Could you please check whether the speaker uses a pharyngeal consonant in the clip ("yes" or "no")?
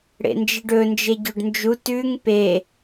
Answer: no